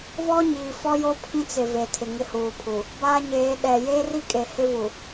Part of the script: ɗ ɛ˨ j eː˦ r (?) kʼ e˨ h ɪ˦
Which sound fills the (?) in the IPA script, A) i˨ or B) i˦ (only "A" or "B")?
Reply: B